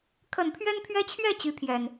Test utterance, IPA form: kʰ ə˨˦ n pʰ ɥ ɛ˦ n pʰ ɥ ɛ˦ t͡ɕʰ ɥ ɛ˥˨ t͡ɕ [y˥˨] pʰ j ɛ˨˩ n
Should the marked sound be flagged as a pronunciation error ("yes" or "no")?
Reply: yes